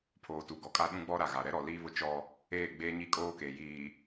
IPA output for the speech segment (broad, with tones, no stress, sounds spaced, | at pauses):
pʰ oː˨ t u˨ ɡ ɔ˨ kʼ a˦ ɗ ũ˦ ɡ͡b ɔ˦ ɾ a˨ ɣ a˨ ɾ ɛ˦ ɾ ɔ˨ l iː˦ β ʊ˦ t͡ʃ ɔ˦ | eː˦˨ ɡ͡b eː˦ ɲ i˦˨ kʼ oː˦ k e˨ j iː˨